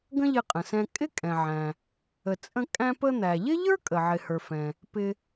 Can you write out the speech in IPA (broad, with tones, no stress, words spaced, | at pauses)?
ɡə̃˥ʎɪ˧qʼə̃˩sɛ̃˧ kʼɪ˥kʼɛ̃˩ʕæ̃˩ | ə˩t͡sʼə̃˧ kʼæ̃˧pə˧ n̪æ˩ʎɪ˥ʎə˞˥kʼə˩ ʕɪ˩hə˞˩ fɛ̃˩ | pɪ˧